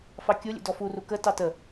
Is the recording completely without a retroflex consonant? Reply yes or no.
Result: yes